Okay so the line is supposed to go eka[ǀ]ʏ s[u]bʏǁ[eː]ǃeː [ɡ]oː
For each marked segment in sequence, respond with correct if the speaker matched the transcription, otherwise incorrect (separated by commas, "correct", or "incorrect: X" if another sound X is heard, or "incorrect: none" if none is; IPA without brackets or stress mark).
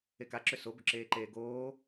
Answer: incorrect: ǁ, incorrect: o, correct, correct